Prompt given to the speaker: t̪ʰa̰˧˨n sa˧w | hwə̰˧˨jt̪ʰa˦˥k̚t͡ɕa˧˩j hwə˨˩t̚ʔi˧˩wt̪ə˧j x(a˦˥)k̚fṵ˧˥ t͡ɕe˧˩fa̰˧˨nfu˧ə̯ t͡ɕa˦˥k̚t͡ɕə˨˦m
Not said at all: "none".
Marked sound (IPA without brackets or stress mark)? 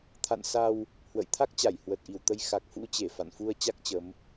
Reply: a˨˩